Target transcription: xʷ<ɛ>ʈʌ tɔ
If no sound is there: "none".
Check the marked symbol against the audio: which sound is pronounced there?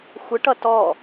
ə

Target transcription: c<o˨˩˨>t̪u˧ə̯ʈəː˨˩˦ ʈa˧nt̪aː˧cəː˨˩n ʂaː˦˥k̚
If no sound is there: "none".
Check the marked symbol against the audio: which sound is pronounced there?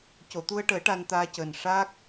o˨˩˨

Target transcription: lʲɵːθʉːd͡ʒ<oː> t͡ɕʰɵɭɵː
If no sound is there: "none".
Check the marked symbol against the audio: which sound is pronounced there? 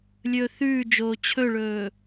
oː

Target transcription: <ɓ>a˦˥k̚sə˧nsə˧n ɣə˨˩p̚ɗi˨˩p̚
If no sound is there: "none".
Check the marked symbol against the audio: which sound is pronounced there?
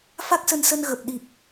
f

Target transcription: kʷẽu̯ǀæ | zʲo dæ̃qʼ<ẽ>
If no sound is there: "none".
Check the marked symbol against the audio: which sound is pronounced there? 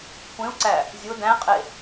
e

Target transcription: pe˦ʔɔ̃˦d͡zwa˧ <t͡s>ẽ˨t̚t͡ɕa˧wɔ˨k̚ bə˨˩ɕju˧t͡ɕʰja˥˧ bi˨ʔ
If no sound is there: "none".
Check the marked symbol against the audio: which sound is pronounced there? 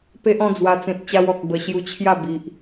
t͡s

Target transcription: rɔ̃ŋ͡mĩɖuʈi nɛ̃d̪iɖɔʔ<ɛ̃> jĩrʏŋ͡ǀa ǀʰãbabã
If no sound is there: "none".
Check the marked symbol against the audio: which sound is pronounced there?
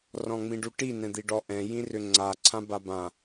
ɛ̃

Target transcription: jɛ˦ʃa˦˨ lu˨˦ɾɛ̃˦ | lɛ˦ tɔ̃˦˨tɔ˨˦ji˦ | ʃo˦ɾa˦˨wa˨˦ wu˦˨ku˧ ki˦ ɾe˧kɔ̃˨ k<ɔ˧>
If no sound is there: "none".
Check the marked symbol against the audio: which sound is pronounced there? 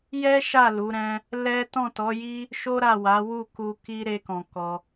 ɔ˧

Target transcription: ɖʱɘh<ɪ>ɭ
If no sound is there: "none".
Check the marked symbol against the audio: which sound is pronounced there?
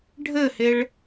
ɪ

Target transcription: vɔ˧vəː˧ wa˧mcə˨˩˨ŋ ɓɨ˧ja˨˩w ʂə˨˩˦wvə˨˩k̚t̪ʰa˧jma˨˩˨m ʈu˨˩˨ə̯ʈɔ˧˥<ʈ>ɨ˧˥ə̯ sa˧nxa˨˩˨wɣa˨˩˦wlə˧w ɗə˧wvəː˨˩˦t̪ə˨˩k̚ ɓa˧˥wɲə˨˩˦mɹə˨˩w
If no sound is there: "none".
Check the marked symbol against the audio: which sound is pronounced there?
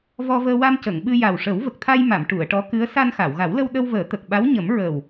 k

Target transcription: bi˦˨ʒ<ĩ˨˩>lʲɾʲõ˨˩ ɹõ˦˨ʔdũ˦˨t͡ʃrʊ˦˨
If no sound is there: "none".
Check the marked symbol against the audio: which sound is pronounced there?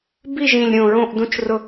ĩ˨˩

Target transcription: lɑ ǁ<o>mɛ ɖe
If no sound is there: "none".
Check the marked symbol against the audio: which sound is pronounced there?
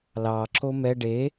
o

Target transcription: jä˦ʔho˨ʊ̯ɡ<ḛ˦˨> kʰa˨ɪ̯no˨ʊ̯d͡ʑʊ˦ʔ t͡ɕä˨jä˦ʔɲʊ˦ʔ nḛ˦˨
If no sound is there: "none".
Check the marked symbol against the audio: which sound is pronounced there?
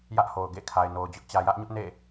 ḛ˦˨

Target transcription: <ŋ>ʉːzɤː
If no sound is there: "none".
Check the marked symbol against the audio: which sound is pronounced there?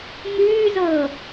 ŋ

